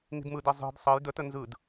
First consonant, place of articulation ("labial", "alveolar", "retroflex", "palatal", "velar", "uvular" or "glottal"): velar